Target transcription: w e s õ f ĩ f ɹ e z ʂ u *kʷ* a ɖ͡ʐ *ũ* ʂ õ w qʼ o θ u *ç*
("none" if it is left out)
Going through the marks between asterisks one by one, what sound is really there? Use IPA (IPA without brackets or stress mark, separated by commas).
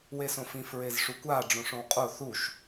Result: kʷ, õ, ʃ